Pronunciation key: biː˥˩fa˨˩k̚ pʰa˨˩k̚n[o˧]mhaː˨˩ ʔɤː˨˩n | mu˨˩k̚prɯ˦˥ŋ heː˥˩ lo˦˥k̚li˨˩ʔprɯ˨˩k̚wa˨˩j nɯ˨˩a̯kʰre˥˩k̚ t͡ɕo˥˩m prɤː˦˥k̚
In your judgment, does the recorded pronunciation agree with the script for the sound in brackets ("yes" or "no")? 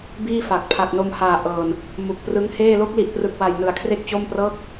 yes